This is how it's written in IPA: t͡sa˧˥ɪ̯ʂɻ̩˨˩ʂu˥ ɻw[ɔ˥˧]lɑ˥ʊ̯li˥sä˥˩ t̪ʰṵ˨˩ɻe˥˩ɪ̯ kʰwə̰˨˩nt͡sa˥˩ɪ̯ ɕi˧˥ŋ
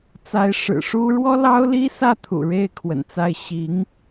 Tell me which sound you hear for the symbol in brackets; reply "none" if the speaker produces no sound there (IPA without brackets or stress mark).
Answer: ɔ˥